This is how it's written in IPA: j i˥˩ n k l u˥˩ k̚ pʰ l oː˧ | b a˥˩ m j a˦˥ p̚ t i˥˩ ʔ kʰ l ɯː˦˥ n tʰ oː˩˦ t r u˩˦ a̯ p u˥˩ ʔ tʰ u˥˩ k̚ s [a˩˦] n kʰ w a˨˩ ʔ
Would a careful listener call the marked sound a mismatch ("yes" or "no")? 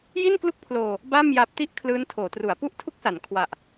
no